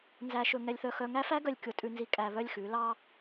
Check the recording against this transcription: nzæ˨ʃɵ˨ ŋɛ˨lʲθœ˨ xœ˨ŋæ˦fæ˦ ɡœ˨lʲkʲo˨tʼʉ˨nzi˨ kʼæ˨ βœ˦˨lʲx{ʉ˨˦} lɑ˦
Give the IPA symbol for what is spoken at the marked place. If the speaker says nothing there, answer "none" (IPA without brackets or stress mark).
ʉ˨˦